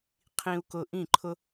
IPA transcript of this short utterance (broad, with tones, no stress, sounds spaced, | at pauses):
qʰ ĩ˧ u̯ k ʊ˧ ʔ ĩ˦˨ ǃʰ ʊ˦